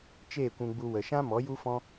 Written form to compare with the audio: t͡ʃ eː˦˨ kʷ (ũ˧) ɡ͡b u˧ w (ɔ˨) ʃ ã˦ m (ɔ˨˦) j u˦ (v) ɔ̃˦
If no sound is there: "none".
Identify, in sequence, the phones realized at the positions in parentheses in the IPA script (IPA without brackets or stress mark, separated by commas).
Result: ũ˧, ə˨, ɔ˨˦, f